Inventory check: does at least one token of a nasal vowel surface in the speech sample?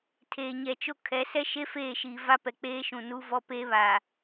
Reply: yes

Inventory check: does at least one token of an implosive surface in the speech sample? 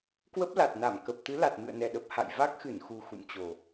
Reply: yes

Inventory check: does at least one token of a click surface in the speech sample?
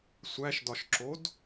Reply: yes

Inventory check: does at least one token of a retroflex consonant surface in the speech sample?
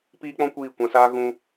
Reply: no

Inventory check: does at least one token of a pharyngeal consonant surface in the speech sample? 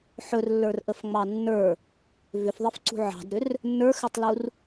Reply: yes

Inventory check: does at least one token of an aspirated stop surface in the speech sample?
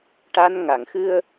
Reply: no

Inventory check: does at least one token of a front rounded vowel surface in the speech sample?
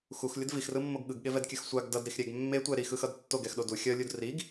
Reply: no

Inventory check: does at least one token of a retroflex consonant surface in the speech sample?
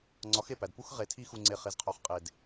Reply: no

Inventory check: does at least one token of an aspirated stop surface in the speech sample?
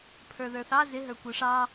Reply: yes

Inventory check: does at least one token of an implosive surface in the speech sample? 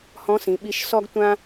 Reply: yes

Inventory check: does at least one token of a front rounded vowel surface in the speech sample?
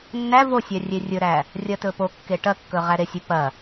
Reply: no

